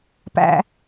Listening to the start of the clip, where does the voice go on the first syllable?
low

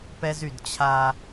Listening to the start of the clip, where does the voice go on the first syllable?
high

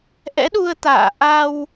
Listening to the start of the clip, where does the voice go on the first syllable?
rising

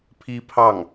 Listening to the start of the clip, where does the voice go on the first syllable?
high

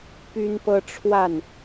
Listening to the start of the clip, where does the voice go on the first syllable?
high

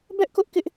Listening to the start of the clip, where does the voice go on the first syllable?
high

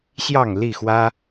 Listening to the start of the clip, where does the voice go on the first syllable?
falling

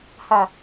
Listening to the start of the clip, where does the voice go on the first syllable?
low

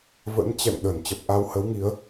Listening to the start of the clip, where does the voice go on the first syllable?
rising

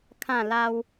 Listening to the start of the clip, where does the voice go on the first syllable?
falling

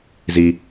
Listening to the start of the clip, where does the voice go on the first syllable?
high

